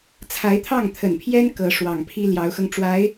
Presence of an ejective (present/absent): absent